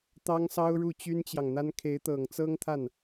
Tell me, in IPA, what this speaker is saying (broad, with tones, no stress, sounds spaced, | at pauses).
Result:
t̪ ɑ˥ ŋ s ɑ˥ ʊ̯ ɻ u˥˩ t͡ɕ y˥ n t͡ɕ j ɑ˨ ŋ n̪ a˥ n kʰ e˧˥ ɪ̯ t̪ ɤ˨˩ ŋ t͡s ɤ˥ ŋ t̪ʰ a˥˩ n